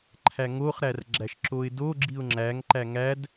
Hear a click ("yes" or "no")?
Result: yes